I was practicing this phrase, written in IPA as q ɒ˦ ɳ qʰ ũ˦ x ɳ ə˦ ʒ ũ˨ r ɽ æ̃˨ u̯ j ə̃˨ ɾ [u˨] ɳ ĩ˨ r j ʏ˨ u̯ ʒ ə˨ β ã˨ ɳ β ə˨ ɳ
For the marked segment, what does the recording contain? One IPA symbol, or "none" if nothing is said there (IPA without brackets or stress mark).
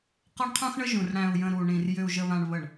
u˨